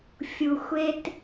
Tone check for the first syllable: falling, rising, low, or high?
low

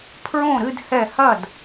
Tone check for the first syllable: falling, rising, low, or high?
falling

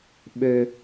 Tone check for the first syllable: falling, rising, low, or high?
high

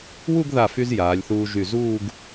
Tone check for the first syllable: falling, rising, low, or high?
falling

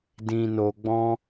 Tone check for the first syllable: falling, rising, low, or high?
low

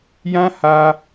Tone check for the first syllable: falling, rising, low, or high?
high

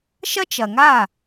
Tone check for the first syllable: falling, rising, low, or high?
high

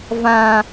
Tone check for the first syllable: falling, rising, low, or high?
low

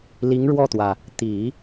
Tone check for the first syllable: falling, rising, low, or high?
rising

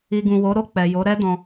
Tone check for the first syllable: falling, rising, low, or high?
low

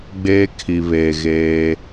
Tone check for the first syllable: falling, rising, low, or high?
high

